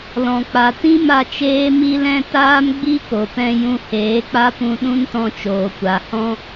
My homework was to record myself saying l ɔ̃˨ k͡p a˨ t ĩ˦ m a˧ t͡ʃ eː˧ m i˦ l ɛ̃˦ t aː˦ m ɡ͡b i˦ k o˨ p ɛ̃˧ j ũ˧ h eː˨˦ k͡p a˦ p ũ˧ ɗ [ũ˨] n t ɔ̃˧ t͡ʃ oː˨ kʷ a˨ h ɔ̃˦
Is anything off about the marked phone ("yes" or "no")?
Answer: yes